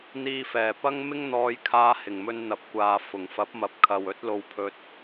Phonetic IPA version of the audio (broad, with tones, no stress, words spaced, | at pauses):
n̪iː˨fɛː˨˩ pɐ˥ŋmɪ˥ŋ n̪ɔː˧j kʰaː˧hɪ˨˩ŋmɵ˧n n̪ɐ˨˥p̚kʷaː˨ fʊ˨˩ŋfɐ˨˥p̚mɐ˨˥p̚kʰɐ˨w ɵ˥t̚ lo˧wpʰɵ˧t̚